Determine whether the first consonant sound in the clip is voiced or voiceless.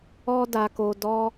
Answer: voiced